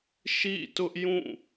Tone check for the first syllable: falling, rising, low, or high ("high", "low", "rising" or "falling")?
falling